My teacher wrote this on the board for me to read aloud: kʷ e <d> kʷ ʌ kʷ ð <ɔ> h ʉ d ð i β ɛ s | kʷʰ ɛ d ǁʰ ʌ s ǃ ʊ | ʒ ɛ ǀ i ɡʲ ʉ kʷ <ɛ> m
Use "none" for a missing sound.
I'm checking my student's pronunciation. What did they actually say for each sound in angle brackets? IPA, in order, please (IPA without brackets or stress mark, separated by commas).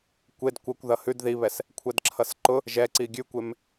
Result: d, ʌ, e